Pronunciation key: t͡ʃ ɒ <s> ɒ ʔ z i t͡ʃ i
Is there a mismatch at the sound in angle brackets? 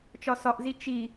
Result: no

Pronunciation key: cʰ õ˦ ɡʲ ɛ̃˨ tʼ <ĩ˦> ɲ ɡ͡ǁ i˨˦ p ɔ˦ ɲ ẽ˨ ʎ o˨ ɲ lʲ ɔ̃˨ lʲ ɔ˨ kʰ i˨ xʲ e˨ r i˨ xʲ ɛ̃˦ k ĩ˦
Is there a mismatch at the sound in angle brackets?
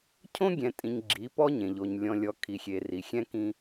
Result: yes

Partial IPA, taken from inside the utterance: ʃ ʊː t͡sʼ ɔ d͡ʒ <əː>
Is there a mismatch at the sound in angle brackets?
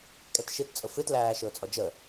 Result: yes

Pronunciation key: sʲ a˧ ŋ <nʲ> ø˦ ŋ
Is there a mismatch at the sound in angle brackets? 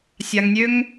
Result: no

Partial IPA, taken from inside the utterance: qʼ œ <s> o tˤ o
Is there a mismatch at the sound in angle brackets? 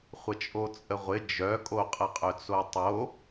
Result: yes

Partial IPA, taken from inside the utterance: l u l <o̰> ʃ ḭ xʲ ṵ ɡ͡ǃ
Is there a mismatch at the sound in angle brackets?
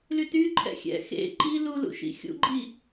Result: yes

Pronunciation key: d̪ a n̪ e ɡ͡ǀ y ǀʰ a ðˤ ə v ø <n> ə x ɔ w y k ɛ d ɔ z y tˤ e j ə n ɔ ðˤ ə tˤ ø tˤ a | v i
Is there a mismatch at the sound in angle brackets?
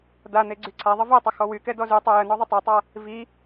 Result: yes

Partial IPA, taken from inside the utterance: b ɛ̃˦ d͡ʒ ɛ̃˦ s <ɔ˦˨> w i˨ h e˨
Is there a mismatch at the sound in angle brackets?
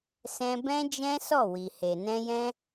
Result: no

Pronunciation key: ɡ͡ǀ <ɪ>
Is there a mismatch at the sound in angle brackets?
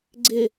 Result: no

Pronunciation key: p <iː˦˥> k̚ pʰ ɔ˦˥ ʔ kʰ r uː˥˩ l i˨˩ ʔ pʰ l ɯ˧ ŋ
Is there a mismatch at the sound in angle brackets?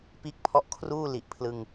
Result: no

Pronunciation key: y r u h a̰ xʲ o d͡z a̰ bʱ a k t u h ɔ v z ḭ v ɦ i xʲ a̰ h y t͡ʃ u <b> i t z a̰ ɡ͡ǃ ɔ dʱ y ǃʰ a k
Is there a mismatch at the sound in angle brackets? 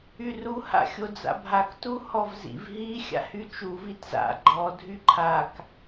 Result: yes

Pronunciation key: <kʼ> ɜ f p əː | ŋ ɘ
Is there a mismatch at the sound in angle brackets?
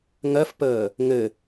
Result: yes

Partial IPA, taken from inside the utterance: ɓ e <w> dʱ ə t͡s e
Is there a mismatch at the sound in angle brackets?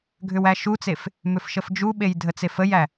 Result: yes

